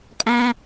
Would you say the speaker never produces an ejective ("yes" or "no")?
no